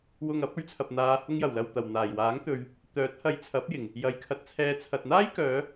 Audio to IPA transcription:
w ʊ˨ ŋ ɐ˨˥ p̚ ɵ˨˥ ɥ t͡sʰ ɐ˨ p̚ n̪ aː˨˧ h ʊ˧ ŋ j ɐ˨˩ w l ɐ˨ w t̪ ɐ˨˩ w n̪ aː˨˩ j w aː˨˥ ŋ t̪ ɵ˨ ɥ | t̪ œː˨˥ t̚ h ɐ˨˧ j t͡sʰ ɐ˨˥ p̚ j ɪ˨˩ ŋ | j ɐ˨˧ j kʰ ɐ˧ t̚ t͡sʰ ɛː˧ t͡sʰ ɐ˨ t̚ n̪ aː˥ j k œː˨˧

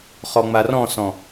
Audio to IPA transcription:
χ ɔ ŋ͡m a r ɔ̃ s ɔ̃

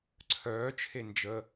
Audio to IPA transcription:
ǀʰ œː t͡ʃʰ e n d͡ʒ ə

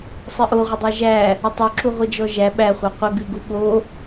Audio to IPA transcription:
sˤ ɨ ʔ o ʁʷ ə dˤ æ ʒ æ | ə tˤ o ǁ u ʁʷ ɨ d͡ʒ ɔ ʒ æ ɓ æ χʷ a qʷ ə ɡ ɨ ɡ u ɓ o

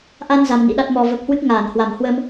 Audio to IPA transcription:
ʔ a˧ n z a˧ m n ḭ˧˥ ɗ a˦˥ t̚ m ɔ˨˩ v ə˨˩ p̚ h w ɨ˦˥ k̚ ŋ aː˧˩ n h w a˧˩ m h w ə˧ m

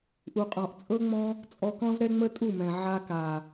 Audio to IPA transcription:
ʔ u˨ qʼ ɔ̃˨ ʔ t͡sʼ ɤ˦ ŋ͡m ɔ̃˦ | t͡sʼ ɔ˧ k ɔ̃˦ z ɾ ɛ˦ ŋ͡m ə˦ tʼ u˦˨ m ɛ̃˨ ʕ a˧ k a˨

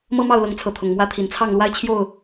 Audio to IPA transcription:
m ɤ˦ m ɑ˥˨ ʊ̯ l ɤ˨˦ ŋ t͡sʰ ɤ˨˦ t̪ʰ ʊ˨˩ ŋ m w ä˦ t̪ʰ i˨˩ n t͡sʰ ɑ˥˨ ŋ l w a˦ ɪ̯ t͡ɕʰ j o˥˨ ʊ̯

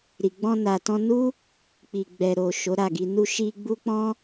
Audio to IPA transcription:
ɾ i˨ ɡ͡b ɔ̃˧ n a˨ t ɔ̃˧ n u˦ | k͡p i˨ ɡ͡b ɛ˨ ɾ o˨ ʃ o˨˦ ɾ a˦˨ ɡ i˧ n u˧ ʃ i˧ ɡ͡b u˦ k͡p ɔ̃˦

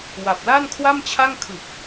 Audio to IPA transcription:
w a˨˩ p̚ l a˥˩ n kʰ w a˥˩ m t͡ɕʰ a˥˩ ŋ kʰ ɯ˨˩ k̚

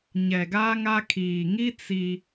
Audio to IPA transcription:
ɲ ɛ˨ ɡ a˦ ŋ a˦ kʰ iː˨ ŋ i˦ t͡s i˦

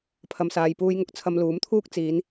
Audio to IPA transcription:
pʰ ɐ˨ m s aː˨ j p uː˧ j ŋ ʊ˧ k̚ t͡sʰ ɐ˧ m l uː˨˥ m t̪ʰ uː˥ k̚ t͡s iː˨˧ n

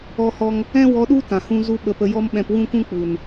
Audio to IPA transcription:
ɔ˦ h ɔ˦ ŋ | ɛ̃˦ w ɔ˧ ɗ u˦ t ã˨ h ũ˦ z u˦ ɓ ə˧ p ə˧ j ɔ˦ m ɓ ɛ̃˧ p w ũ˦ kʷ ũ˦ k͡p u˨ n

